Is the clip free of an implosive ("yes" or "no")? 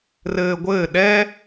no